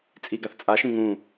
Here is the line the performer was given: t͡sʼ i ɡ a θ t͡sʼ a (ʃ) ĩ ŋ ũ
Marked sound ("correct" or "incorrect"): correct